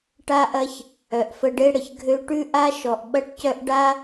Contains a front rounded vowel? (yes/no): yes